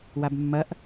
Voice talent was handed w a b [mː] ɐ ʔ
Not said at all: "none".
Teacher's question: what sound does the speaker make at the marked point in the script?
mː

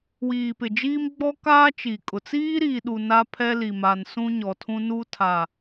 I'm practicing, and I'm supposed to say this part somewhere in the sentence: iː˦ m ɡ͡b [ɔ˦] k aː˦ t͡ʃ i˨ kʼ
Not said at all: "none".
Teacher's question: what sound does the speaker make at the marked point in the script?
ɔ˦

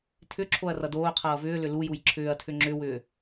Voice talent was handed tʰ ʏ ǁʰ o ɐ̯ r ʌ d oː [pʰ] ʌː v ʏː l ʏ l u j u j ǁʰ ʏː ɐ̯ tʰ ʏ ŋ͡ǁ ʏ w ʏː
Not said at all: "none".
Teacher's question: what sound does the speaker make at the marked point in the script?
qʰ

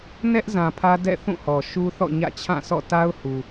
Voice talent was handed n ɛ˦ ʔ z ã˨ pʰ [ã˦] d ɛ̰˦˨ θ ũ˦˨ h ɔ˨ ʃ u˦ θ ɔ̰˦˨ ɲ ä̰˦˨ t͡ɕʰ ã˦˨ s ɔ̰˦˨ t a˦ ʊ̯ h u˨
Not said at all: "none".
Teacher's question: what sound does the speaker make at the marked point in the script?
ä˦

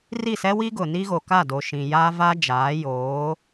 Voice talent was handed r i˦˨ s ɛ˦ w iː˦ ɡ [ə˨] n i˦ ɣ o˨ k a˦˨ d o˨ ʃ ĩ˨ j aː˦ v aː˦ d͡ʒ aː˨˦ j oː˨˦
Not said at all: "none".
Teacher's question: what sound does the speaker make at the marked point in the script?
ʊ˨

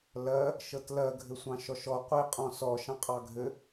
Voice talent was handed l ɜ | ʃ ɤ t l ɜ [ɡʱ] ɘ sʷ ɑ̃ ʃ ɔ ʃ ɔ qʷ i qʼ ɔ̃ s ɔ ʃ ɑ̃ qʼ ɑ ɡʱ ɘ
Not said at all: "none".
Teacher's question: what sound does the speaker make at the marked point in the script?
ɡʱ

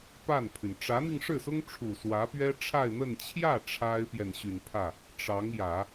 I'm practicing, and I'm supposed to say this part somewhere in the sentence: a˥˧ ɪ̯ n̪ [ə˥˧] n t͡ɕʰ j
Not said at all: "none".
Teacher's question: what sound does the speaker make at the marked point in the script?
ə˥˧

